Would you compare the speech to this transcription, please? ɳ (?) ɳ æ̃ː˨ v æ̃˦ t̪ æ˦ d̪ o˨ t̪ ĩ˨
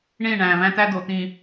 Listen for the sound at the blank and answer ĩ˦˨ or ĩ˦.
ĩ˦˨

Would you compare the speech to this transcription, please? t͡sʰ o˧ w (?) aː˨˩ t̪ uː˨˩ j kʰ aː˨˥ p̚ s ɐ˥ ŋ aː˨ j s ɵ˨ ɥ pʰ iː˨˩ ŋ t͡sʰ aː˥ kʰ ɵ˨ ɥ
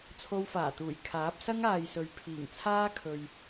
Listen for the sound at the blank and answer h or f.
f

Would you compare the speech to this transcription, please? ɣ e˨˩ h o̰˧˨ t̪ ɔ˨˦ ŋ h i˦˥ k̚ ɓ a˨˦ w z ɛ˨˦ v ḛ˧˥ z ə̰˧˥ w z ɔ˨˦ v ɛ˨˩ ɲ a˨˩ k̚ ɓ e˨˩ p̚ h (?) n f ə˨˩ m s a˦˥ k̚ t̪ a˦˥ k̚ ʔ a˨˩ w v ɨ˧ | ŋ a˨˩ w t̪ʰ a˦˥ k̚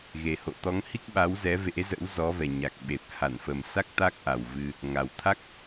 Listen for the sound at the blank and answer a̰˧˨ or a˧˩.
a˧˩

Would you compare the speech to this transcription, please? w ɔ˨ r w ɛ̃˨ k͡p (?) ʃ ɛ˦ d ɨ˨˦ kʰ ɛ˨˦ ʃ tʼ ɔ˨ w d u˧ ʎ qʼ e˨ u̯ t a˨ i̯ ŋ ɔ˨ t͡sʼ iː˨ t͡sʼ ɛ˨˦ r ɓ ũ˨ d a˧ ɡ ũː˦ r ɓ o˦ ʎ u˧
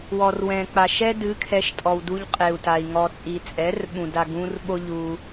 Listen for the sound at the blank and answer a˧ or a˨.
a˨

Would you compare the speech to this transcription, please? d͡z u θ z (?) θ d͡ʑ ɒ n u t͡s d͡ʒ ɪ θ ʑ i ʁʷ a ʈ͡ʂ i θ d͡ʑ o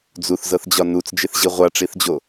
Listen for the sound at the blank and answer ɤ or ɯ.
ɤ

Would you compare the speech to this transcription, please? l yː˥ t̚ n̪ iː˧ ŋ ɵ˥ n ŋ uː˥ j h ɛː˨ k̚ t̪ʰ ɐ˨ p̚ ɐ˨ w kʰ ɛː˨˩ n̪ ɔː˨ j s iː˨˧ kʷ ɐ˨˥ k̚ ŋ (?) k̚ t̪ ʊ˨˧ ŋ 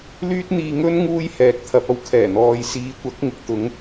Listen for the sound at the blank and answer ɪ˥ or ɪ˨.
ɪ˨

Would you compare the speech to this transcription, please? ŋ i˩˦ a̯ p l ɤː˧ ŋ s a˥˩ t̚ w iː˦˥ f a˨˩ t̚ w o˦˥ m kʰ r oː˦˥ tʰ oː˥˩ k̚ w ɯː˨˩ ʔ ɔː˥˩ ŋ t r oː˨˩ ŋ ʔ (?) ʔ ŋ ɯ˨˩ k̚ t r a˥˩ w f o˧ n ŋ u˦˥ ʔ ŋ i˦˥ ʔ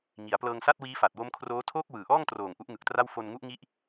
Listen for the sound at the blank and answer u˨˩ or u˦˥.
u˦˥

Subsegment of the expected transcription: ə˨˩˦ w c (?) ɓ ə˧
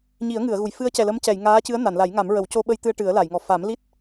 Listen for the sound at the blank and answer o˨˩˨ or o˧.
o˧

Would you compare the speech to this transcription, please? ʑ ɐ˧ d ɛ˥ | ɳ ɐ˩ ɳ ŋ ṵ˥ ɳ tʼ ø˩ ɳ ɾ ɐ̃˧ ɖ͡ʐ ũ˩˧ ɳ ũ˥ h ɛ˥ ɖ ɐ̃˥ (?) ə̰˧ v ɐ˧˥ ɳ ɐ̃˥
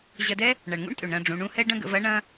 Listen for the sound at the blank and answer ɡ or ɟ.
ɡ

